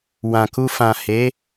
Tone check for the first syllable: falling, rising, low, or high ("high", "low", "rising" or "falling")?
low